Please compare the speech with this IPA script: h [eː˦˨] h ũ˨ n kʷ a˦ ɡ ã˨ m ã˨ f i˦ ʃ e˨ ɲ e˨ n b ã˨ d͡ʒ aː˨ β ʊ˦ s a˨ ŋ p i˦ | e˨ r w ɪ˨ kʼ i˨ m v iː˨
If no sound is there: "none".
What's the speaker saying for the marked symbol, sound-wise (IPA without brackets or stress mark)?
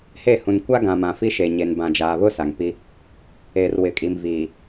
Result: e˦˨